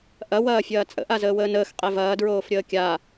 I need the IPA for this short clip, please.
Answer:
ʔ ɐ w ɐː fʲ ɐː t͡sʼ ə̰ ʔ a z əː w əː n əː x qʼ e v ɐː d ɹ oː f ɾʲ əː kʲ a

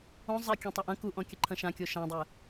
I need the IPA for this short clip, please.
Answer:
õ zˤ e kʲ ɔ̃ tˤ ɐ ʔ ɐ̃ k u ʔ ɔ̃ kʲ ɘ ǃʰ ɐ̃ ʃ ã kʲ o ʃ ã dˤ ɛ

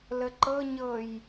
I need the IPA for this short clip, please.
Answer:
l ə ǃ ɤ ɲ ɤ j

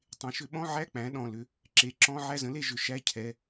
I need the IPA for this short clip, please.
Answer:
tˤ ẽ˩˥ ʃ ʏ˨˩˦ ɓ ɔ̃˧˥˧ ʕ æ˧˥˧ k͡p æ̃˩˥ ɗ ɔ̃˩˧˩ l ʏ˩˥ | ǁ e˩˥ ǁ ɔ̃˧˥˧ ʕ æ˦˨ z ə̃˩˥ l e˦˨ ʒ ʏ˩˧˩ ʃ æ˧˥˧ cʰ ɛ˩˧˩

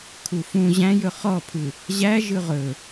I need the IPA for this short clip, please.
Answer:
kʰ u f ũ ʑ æ̃ j ɵ χ ɔ pʰ ɯ | ʑ æ ʒ ɯ ʁ ɵ

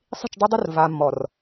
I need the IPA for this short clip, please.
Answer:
sˤ i̤˦˨ t͡ʃ dˤ ɯ˦ dˤ o˦ r v a˨ mː ɔ˨ r

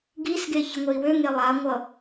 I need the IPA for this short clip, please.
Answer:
ɡ i s ɡ e ç ʌ ŋʷ ɛ i̯ w ø ŋ e lˠ a ŋʷ ʌ

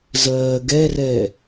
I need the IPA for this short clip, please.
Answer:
z ɜː ɡ ɛ r ɛ

